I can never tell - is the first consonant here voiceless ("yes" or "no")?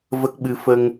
no